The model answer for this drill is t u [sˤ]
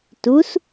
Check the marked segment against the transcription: incorrect: s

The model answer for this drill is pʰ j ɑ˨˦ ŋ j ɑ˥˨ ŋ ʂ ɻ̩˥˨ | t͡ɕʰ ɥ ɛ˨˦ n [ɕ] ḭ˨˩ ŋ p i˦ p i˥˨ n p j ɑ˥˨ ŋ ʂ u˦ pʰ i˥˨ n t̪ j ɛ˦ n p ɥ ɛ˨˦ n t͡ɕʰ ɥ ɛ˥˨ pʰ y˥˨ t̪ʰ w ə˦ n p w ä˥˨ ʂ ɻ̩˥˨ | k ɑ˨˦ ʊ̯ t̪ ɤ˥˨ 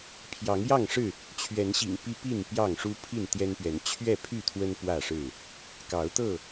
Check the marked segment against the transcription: correct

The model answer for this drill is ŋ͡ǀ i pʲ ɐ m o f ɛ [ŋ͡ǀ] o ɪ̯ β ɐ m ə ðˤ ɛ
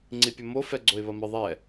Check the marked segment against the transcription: incorrect: ɡ͡ǀ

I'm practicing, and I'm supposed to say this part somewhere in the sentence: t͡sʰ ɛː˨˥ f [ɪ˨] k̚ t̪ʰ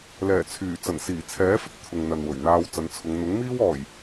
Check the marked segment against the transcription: incorrect: ɪ˥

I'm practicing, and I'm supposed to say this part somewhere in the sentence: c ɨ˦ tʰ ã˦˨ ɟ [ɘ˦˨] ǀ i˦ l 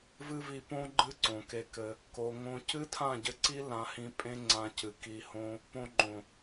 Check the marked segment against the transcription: incorrect: ɘ˧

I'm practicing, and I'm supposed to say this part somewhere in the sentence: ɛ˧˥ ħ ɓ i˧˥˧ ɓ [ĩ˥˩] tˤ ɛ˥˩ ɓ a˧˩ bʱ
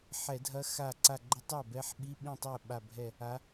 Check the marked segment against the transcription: correct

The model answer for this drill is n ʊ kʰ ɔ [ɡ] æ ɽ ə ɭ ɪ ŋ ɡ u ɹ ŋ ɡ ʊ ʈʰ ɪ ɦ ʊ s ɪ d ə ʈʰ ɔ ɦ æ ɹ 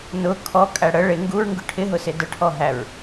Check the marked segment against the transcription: incorrect: kʼ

